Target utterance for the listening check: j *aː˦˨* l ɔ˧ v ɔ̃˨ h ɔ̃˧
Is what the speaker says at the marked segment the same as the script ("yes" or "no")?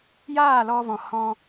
yes